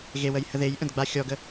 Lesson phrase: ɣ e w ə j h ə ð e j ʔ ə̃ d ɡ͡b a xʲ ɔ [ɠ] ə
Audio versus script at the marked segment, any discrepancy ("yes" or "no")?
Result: yes